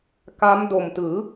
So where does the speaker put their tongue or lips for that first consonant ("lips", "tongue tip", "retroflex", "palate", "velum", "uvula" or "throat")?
velum